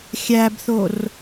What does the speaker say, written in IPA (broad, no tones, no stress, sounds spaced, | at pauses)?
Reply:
xʲ æ b θ o r